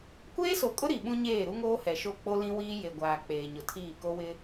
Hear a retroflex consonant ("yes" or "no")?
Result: no